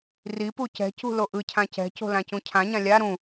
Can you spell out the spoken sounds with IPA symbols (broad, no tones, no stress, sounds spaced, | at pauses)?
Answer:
r i p u c ɛ̤ c ṳ l o ʔ ɯ cʰ ã c ɛ̤ c o̤ l ã c ũ cʰ ã ɲ ã lʲ a ɾ ũ